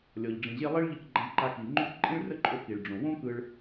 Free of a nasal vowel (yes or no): no